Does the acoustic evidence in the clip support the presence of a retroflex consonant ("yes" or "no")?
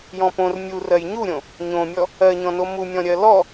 no